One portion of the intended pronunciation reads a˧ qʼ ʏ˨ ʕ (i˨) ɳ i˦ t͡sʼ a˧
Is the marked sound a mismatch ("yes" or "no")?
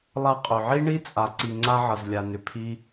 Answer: yes